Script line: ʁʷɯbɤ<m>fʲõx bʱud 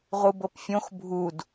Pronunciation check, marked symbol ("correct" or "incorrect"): incorrect